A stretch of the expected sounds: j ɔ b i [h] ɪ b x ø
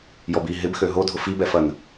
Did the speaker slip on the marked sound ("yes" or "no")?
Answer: yes